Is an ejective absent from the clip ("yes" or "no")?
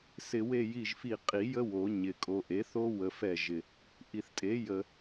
no